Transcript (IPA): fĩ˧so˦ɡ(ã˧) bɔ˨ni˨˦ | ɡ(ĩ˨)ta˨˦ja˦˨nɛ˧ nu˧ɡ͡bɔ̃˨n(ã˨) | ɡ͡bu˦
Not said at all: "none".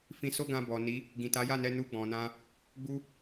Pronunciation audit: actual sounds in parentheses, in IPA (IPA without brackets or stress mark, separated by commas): ã˧, ĩ˨, ã˧